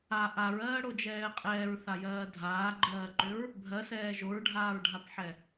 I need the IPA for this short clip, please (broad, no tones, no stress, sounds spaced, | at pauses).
a ʔ a ɹ ɜː ɽ o d͡ʒ ɛː qʼ ɛː ɹ θ a j ɜː dʱ aː ɡ͡ǃ ɜː ǃ ʏ ɹ | bʱ ɜ s ɛː ʒ o ɹ ɖʱ aː ɹ ɖʱ a p ħ ɛ